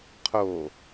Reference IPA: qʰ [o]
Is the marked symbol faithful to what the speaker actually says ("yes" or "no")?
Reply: yes